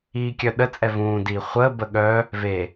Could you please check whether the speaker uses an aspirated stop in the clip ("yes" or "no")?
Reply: no